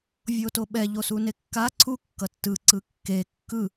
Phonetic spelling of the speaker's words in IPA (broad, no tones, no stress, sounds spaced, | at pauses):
vʲ o t o ɓ ɛ ʎ o s u n e kː a ǀʰ u kː ʌ tː ɯ ǀ ɯ kː e kː ɯ